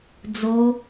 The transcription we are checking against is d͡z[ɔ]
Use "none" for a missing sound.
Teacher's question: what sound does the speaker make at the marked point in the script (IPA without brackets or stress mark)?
o